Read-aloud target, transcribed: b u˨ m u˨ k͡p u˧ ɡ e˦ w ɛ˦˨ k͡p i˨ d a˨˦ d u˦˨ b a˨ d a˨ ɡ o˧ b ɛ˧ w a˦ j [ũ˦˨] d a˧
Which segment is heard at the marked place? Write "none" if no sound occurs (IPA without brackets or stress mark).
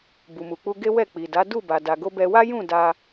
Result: ũ˦˨